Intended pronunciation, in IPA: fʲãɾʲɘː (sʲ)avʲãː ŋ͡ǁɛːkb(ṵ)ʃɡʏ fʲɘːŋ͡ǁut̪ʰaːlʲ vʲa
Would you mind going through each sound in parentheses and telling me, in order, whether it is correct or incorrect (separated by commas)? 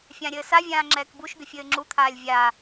incorrect, incorrect